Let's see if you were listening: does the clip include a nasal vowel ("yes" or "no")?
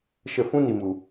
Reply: yes